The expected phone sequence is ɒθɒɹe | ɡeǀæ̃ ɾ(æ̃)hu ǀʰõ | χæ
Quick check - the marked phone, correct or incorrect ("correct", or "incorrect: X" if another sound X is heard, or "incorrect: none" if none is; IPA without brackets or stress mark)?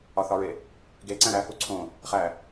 incorrect: æ